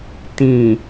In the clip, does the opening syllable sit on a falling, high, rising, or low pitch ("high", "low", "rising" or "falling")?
low